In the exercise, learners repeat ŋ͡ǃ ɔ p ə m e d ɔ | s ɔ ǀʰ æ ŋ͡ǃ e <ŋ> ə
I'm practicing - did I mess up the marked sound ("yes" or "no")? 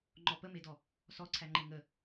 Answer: no